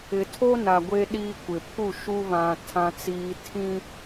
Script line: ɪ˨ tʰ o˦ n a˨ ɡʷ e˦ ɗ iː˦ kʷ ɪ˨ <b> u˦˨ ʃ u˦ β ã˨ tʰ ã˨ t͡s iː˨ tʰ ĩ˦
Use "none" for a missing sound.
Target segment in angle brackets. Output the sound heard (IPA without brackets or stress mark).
pʰ